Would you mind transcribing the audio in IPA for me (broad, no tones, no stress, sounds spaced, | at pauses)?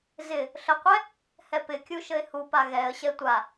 z ɪ | ɬ ə qʷ ɛ | h ɛ p ɪ kʲ u ʃ ə ɪ̯ h u p a ɣ ɛ ə̯ ɕ ɛ tʷ a